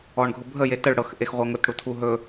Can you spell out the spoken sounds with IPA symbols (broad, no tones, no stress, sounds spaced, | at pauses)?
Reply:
ɔ ɳ ɡʱ ʊ bʱ ə j e t ə ɭ ɽ ɤ x ʔ e x ʁʷ ɤ ŋ ʊ t ɽ u tʰ u ɦ ɵ